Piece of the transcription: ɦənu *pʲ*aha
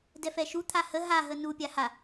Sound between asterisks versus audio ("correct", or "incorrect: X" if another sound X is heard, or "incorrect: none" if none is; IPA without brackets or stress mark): correct